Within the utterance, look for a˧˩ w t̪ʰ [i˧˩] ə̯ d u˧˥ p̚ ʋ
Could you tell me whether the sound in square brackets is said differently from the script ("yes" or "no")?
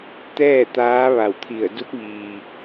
no